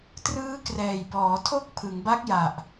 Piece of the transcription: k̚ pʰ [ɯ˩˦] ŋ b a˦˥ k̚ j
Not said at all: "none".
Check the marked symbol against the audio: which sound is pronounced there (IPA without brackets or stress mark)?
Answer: ɯ˩˦